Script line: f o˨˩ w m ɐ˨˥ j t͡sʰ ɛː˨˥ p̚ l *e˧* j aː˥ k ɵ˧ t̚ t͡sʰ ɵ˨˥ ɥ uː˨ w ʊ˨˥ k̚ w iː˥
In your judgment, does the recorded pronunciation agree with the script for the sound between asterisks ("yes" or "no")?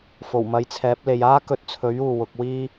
no